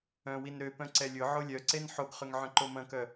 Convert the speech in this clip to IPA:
œ̃ w i n ɾ ø p œ̃ ǀ ɛ lʲ ʊ ʕ o lʲ œ ǀ e n ħ o ɡ χ ʏ ŋ ʕ œ̃ ǃ o m ɐ̃ k œ

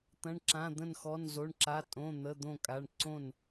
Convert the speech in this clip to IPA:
t̪ ɐ̃˧˥˧ ɳ ǁ ã˧˥˧ d̪ ə̃˥˨ n x ɔ˧˥˧ n z o˧˥˧ ɳ ǁ a˧˥˧ tʼ õ˧˥˧ n̪ ə˧˥˧ d̪ õ˥˨ kʼ a˧˥˧ ɳ ǀ õ˥˨ n

